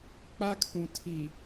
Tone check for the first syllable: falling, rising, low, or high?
high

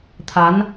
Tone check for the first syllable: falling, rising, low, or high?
rising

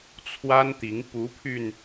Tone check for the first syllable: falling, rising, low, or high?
high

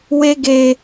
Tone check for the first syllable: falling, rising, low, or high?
high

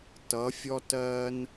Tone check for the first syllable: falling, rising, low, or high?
rising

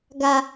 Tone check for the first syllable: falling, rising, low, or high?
low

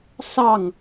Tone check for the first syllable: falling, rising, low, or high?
falling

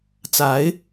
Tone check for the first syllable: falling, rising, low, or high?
rising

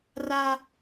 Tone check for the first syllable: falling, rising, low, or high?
high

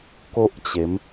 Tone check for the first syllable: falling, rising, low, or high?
high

